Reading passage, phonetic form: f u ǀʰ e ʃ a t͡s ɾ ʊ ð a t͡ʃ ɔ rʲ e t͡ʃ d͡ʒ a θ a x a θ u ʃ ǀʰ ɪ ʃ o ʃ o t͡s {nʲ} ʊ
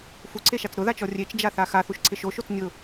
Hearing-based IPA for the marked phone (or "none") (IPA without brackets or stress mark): nʲ